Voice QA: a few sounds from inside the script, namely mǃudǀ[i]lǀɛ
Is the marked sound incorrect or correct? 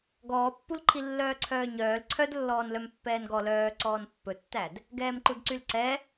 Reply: incorrect